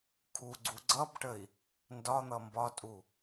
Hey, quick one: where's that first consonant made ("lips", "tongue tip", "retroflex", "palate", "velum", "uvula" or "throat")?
velum